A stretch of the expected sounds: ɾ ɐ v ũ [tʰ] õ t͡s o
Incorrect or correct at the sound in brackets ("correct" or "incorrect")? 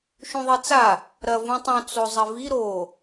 incorrect